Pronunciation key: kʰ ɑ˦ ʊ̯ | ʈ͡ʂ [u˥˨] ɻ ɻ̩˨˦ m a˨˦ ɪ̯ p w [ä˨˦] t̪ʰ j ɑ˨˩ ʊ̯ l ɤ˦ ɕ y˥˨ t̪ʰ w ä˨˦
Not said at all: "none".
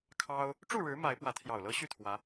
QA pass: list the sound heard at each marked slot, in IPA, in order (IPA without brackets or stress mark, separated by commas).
u˥˨, ä˨˦